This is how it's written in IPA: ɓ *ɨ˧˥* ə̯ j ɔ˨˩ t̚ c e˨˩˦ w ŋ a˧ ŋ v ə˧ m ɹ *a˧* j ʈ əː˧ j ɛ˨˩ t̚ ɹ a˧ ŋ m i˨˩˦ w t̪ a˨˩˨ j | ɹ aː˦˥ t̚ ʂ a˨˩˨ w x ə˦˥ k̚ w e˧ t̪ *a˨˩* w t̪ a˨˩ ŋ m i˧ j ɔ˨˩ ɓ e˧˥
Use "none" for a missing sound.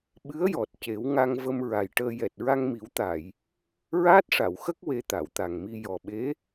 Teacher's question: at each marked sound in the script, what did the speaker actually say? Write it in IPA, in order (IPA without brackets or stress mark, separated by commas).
ɨ˧˥, a˨˩, a˨˩˨